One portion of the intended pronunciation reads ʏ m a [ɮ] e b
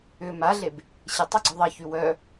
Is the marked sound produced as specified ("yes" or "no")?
yes